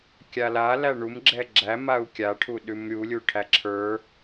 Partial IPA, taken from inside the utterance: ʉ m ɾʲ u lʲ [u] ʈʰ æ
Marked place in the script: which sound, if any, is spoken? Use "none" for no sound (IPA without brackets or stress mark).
u